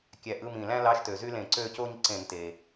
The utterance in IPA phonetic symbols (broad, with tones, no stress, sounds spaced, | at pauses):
kʲ æ˧˩ ʔ ɯ˧˥˧ m ĩ˧˩ l æ̃˥ l ɑ˧˥˧ ʃ t ø˩ z y˥ l ẽ˧˩˧ ǀ ø˥˧ c o˥ ɲ ǀ ẽ˧˩˧ n t e˩